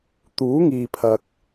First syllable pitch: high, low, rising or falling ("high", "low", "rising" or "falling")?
rising